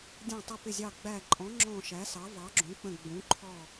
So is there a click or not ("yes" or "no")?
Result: yes